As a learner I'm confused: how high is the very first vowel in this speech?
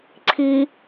high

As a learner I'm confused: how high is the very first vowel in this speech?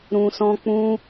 high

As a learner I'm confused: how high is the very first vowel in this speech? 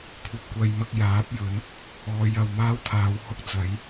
low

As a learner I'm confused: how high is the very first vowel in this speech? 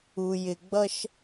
high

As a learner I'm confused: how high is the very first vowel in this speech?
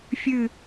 high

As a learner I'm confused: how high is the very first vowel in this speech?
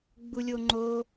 high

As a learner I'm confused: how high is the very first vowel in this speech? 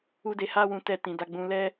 high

